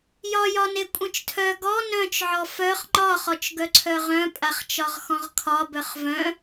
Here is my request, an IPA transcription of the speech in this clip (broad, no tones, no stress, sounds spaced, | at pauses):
j ɒ j ɒ n e kʷʼ œ̃ t͡ʃ tʰ œ ɡ ɔ n œ̃ t͡ʃ ʕ ɔ f œ χ ŋ͡ǃ ɒ χ ɔ t͡ʃ ɡ œ ǀʰ œ ʁ œ̃ pʼ a χ t͡ʃ ɒ ʁ x ɔ̃ ʁ kʰ ɒ b œ χ v œ̃